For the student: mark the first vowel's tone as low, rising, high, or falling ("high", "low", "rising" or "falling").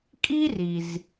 high